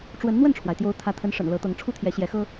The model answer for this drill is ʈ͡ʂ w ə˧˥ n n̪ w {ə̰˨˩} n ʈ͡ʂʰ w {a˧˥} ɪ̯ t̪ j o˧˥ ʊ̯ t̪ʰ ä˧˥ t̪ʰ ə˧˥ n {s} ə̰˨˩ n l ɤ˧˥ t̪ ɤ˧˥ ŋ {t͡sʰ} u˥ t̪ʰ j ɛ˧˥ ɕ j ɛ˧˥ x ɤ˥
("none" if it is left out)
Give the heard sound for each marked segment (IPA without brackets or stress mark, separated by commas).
ə˥˩, a˩, ʂ, ʈ͡ʂʰ